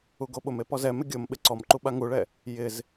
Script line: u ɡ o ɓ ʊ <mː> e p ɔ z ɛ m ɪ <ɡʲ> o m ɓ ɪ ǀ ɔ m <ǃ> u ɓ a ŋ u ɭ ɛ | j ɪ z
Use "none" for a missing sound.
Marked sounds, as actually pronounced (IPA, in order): m, ɡʲ, ǃ

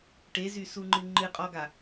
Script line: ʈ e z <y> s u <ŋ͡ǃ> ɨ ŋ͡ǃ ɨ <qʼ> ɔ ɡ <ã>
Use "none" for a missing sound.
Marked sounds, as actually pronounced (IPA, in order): y, ŋ͡ǃ, qʼ, a

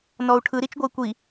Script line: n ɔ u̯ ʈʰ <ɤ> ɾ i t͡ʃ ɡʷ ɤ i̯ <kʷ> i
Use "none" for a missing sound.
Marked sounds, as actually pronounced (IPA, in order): ɯ, kʷ

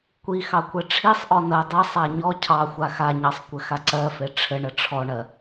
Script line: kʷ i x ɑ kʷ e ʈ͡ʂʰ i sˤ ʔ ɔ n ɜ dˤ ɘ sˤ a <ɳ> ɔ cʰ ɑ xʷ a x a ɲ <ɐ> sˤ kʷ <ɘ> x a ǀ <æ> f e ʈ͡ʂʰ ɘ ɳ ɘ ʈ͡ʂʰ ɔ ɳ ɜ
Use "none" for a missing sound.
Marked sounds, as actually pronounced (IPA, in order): ɲ, ɑ, ɘ, ɜ

